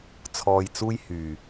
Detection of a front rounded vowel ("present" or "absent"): present